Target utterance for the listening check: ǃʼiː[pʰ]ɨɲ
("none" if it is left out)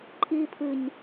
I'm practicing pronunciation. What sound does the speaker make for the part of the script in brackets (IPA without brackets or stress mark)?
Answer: pʰ